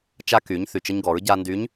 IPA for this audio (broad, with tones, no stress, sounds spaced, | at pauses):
t͡ʃ a˧ k y˩˧ ɲ θ y˩ t͡ʃ ə˧ ɲ ɡ ɔ˩˧ ɹ ɟ a˧ n d y˧˥ ɲ